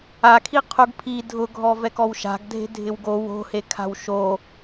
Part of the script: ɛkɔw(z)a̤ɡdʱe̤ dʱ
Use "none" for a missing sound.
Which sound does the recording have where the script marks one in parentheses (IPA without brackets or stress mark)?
ʃ